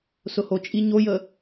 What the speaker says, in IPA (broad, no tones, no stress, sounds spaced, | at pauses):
s ʊ h o t͡ʃʼ i ɲ o j ə